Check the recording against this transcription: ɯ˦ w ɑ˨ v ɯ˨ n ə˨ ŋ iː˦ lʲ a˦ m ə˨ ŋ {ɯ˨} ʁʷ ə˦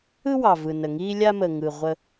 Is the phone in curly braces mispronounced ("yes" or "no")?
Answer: no